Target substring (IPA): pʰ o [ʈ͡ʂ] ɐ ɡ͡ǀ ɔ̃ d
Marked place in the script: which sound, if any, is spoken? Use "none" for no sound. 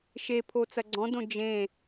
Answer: t͡s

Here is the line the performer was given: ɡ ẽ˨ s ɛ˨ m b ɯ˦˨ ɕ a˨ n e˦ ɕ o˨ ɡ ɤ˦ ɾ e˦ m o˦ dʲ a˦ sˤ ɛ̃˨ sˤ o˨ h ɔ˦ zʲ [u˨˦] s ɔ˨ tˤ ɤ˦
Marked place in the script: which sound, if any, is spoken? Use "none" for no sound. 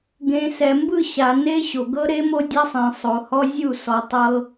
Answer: u˦˨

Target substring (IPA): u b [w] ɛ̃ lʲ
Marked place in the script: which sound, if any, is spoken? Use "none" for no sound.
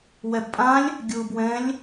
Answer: w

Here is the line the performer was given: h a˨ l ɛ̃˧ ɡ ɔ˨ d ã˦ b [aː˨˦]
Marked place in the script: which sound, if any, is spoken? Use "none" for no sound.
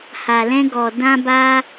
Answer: aː˦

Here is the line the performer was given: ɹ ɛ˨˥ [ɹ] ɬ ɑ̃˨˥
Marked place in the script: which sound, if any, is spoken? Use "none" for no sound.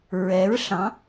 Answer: ɹ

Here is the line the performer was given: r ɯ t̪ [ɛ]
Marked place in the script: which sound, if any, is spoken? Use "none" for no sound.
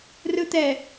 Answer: ɛ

